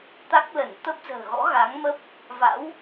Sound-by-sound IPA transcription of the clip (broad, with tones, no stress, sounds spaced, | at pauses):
t̪ a˦˥ k̚ l ə˧˩ n t̪ ə˦˥ p̚ z ə̤ː˨˩ ɣ ɔ̰˧˥ ɣ a˨˦ ŋ m ə˦˥ p̚ | v a̰˧˥ w